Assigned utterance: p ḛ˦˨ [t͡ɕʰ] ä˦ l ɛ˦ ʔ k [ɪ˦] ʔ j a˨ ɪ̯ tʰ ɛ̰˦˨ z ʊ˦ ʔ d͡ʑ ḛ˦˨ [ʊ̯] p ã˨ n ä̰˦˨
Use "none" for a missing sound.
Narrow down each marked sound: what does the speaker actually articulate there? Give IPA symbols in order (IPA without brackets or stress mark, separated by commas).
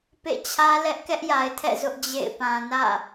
t͡ɕʰ, ɛ˦, ɪ̯